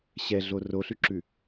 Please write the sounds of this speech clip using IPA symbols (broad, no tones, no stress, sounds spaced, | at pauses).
ɕ ɛ ɮ o r o ɬ ʉ ǁ ʉ